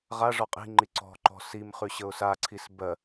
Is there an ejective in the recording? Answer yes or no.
yes